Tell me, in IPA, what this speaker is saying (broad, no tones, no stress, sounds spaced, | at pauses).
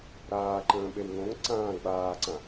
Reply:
ɾ aː ǃ ə̃ː ɓ e w ŋ õ ŋ ǀ ãː ɡ͡b aː ǀ ã